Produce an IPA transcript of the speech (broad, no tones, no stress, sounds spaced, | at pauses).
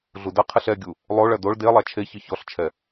ɮ u d ɐ qʰ ɨ ɬ ɛ ɡʲ u | lˠ o ɭ ɐ d o ɭ d e lˠ a t͡ʃʰ e ç ɨ ç ɔ ɬ t͡ʃʰ ɛ